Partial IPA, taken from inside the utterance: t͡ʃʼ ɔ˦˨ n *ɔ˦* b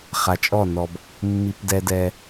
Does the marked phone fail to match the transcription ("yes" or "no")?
yes